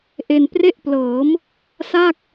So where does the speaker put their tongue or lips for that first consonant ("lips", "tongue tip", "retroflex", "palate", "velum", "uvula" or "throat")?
throat